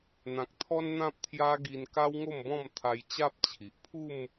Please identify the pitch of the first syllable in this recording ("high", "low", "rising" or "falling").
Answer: low